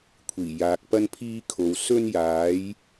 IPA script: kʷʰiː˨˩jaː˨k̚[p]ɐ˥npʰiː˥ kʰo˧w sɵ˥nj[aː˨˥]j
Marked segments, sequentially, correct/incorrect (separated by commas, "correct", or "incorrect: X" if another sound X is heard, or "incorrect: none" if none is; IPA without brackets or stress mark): correct, correct